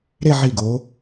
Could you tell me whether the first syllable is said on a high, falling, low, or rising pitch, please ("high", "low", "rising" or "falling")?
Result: falling